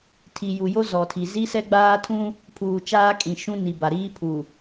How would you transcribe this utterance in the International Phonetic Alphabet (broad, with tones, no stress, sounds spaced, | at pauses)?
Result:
tʰ i˨ j u˨ j o˦ z ɔ˨ tʰ i˨ z i˦ s ɛ˦ ɡ͡b aː˦ tʰ ũ˦ | pʰ uː˨ t͡ʃ aː˦ kʼ ĩ˨ ʃ ũ˦ n i˨ b a˨ ɾ iː˦ pʰ u˨